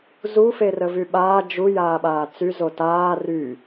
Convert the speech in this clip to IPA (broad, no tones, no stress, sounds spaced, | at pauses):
z u f e r ə v y ɓ aː d͡ʒ u j aː ɓ aː t͡s y z o t aː r y